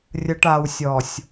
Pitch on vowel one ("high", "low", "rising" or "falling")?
low